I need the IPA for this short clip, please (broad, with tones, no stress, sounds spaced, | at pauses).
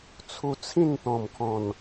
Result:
t͡sʰ u˧ t͡sʰ ĩ˥˧ n t̪ ɔ̃˨˩ m kʰ ɔ̃˨˩ n